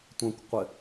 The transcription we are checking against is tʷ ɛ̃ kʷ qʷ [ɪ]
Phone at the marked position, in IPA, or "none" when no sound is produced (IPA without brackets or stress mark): ɪ